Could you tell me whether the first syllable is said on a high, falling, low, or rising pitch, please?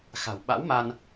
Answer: low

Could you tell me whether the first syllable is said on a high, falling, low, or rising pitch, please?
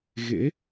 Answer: rising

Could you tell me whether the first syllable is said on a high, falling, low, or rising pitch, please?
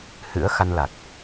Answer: rising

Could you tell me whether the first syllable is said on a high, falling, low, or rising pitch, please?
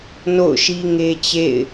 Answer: falling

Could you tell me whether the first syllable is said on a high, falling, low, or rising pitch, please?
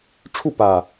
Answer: falling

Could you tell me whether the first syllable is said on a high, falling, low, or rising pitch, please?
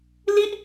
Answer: falling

